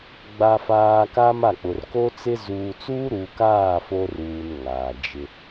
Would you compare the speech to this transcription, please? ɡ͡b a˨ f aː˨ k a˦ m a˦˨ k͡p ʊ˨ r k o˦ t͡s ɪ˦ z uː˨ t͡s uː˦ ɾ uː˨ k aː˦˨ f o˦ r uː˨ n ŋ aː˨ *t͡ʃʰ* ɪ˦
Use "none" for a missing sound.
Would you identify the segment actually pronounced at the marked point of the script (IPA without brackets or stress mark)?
d͡ʒ